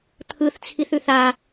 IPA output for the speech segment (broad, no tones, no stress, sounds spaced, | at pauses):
t̪ʰ ɯ θ t͡sʰ i θ ʉ θ a